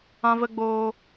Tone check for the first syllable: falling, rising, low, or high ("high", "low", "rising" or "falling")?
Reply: low